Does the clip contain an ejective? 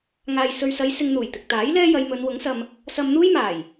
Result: no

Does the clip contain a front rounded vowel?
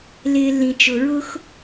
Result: no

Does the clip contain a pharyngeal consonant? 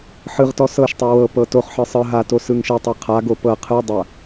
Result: yes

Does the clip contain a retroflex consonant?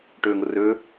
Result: yes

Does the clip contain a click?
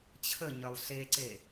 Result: yes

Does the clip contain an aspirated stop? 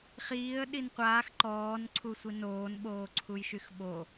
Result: yes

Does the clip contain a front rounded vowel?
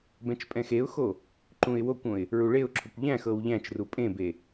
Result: no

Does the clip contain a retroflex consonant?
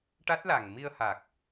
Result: yes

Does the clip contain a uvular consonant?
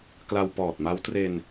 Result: no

